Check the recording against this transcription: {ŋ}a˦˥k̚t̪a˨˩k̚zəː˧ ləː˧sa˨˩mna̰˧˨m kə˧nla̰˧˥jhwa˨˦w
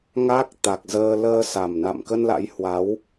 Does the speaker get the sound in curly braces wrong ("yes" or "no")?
no